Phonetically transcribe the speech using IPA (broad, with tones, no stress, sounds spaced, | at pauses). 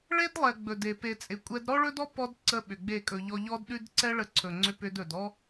ɭ e˦ d lˠ ɛ˨ ɡ͡b ɵ˨ d e˨ p e˨ t͡sʼ ɪ˨ kʷʼ ɛ˧ d ɾ ɔ˦ ɭ ɵ˦ d ɔ˦ p ɔ˧ d ǀ ə˧ ɓ ʏ˨ ɡ͡b e˦˨ kʼ ɵ˧ ʎ ɔ˦ ʎ ɔ˦ d ɗ ʉ˦ d ǀ ɛ˦ ɭ ə˧ ǀʰ ɵ˨ ŋ͡ǀ ʏ˧ p ʏ˧ d ɵ˨ d ɔ˦